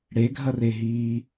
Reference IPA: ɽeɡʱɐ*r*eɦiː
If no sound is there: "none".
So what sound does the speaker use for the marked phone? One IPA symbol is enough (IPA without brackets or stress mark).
r